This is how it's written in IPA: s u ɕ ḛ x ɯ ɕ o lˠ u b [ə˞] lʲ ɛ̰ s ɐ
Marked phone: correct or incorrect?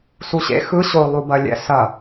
incorrect